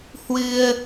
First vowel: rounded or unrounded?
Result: unrounded